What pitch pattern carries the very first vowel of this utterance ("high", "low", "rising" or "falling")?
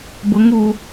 rising